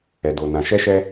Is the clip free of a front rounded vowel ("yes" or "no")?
yes